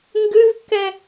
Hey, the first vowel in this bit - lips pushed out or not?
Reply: yes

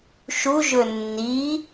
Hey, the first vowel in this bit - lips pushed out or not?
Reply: yes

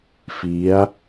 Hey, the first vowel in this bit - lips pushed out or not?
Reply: no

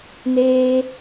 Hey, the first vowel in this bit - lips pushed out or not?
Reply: no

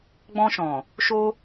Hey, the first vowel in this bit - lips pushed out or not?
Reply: yes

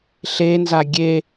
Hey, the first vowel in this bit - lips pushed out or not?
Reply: no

